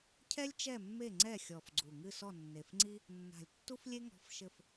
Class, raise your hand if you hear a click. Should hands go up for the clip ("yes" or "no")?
yes